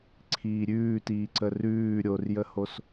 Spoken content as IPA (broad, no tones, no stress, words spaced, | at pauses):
ǀʰiːɾʲʉːtiː ǀərʉː ɾʲorjəhos